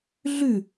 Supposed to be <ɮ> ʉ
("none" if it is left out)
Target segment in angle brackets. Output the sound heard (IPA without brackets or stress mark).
ɮ